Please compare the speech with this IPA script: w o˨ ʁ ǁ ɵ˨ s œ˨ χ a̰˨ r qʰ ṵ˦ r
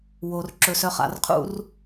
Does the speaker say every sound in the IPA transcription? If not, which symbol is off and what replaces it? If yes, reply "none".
ʁ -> r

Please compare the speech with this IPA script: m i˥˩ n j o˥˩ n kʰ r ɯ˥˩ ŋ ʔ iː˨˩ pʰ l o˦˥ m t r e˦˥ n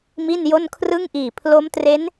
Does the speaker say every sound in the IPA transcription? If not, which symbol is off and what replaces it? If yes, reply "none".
none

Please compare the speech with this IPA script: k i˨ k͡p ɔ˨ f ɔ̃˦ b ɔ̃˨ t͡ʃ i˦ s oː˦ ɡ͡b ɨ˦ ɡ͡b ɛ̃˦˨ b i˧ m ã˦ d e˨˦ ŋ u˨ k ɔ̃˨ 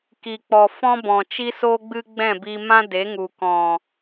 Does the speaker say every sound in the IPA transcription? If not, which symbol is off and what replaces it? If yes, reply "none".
none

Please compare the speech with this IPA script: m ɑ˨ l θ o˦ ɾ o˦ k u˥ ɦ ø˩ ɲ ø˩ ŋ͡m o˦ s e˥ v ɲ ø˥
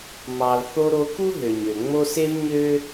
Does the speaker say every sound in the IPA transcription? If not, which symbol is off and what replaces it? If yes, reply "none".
none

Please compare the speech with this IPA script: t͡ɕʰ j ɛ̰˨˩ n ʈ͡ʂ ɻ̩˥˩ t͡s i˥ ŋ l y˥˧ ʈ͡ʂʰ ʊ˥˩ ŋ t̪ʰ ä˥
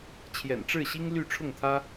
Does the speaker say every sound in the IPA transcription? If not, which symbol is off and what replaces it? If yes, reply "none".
t͡s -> ɕ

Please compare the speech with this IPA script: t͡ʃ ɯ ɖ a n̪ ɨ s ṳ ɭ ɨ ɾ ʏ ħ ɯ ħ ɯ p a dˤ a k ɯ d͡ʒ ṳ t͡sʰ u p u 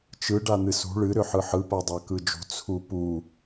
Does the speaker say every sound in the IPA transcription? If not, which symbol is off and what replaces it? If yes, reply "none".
none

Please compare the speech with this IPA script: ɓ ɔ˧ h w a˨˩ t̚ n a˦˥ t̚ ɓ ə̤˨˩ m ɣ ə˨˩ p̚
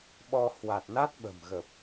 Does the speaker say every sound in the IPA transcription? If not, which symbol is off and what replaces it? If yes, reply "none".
none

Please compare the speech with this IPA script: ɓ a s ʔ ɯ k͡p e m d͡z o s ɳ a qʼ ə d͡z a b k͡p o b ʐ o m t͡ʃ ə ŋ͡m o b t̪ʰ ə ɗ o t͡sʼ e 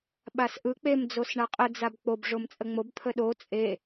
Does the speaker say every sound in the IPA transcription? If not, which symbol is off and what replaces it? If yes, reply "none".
t͡ʃ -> t͡sʼ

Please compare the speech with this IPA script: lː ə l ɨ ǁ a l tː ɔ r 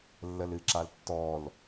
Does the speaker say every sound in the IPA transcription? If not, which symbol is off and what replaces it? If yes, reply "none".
r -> l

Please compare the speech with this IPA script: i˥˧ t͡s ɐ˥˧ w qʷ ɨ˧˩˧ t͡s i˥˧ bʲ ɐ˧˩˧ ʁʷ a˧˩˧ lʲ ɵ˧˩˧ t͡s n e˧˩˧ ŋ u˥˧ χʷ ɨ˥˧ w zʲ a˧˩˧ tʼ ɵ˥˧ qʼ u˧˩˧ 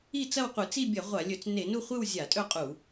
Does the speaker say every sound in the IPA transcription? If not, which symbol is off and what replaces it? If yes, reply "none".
ŋ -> n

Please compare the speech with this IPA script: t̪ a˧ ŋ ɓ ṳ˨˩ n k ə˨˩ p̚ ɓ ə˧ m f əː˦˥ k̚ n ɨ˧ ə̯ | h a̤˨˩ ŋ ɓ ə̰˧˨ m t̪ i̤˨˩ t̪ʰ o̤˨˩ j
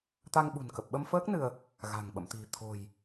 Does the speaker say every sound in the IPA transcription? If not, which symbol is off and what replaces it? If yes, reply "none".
h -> ɣ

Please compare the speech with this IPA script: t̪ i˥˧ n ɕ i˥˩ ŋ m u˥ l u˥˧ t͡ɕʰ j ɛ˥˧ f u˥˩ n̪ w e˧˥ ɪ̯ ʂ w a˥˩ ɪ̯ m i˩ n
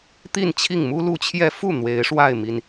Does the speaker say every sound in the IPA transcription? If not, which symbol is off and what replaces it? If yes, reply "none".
ɕ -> t͡ɕʰ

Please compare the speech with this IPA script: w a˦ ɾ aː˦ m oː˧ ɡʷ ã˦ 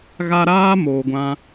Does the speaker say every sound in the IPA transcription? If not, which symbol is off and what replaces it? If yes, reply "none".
w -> ɣ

